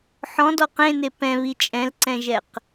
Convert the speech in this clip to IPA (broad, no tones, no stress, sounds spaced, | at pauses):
ħ ɔ̃ d ɔ q ẽ n e p ɛ̃ β i t͡ʃʼ ɛ̃ l ǀ ɛ̃ ʒ ɛ q